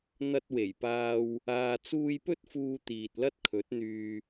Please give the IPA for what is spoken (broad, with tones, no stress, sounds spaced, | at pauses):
n̪ ɐ˧ t̚ w e˨˩ j p aː˧ w | aː˨ t͡s uː˧ j p ɵ˥ t̚ f uː˧ t̪ iː˨ t̚ l ɐ˥ t̚ kʰ ɵ˨˥ t̚ n̪ yː˨